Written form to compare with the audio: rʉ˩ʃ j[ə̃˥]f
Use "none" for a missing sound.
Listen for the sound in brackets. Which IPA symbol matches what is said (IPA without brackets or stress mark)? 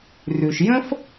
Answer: ə̃˥